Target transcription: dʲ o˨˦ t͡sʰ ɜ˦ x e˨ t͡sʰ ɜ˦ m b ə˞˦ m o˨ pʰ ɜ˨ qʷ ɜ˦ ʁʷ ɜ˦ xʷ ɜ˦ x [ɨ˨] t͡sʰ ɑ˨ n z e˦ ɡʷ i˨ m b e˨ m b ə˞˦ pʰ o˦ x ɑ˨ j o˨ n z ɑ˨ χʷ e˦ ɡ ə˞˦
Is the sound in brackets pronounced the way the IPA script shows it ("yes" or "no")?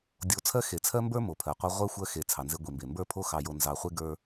no